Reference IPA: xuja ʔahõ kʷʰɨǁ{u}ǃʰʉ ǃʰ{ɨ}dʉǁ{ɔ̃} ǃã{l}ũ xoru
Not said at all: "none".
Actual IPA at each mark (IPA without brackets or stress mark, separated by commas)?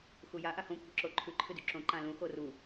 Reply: o, ɨ, õ, l